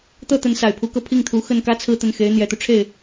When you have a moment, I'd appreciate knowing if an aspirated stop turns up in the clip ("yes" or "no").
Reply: yes